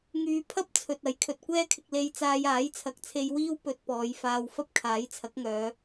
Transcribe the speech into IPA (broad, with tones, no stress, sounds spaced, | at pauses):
ŋ yː˧ pʰ ɐ˥ p̚ t͡sʰ ɵ˨ t̚ ɐ˨˥ j kʰ ɵ˨ t̚ kʷ ɛː˥ kʰ ɪ˧ k̚ l e˧ j t͡s aː˧ j aː˨˥ j t͡sʰ ɐ˨˥ k̚ t͡sʰ e˧ j w iː˥ w p ɵ˧ t̚ p ɔː˨˧ j f aː˧ w f ɐ˥ p̚ kʰ aː˨˥ j t͡sʰ ɐ˨˥ k̚ ŋ œː˨˧